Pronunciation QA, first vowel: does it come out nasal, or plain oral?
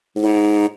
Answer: nasal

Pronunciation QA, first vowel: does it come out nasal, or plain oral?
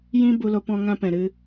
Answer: nasal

